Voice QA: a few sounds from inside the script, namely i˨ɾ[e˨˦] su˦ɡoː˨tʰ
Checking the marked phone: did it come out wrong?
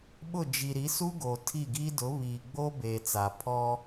yes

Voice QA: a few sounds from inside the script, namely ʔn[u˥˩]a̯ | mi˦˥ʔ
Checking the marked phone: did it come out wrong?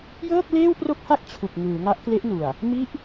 yes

